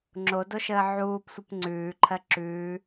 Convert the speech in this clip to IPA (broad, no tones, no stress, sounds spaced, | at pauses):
ŋ͡ǁ o d o ʃ əː ʕ uː p sʷ ə p ŋ͡ǀ ʉː ǃʰ ɜ ǁ ʉː